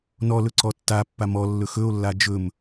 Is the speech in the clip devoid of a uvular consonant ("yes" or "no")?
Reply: yes